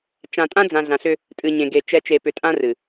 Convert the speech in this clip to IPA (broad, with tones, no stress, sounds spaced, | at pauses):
t͡ʃ ã˨ tʼ ã˦ d͡z ã˨ ɮ ã˨ ɬ ʏ˦ | tʼ ɨ˨ ɲ ẽ˨ ɡ e˨ t͡ʃ ɛ˨˦ t͡ʃ e˨ p ʏ˨ tʼ ã˦ r ɨ˨